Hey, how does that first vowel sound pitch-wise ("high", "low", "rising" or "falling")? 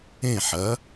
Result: falling